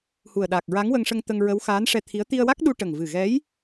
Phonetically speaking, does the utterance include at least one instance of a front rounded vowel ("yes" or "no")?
no